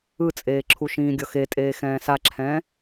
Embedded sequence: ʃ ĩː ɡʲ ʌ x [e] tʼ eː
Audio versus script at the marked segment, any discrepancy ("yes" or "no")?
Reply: no